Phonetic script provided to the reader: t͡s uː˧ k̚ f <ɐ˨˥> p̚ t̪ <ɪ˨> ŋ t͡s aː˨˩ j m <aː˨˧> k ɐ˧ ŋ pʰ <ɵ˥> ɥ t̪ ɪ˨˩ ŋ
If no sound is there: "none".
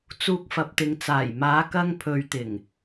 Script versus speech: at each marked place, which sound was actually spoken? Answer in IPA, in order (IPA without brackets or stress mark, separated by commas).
ɐ˨, ɪ˨, aː˨˧, ɵ˨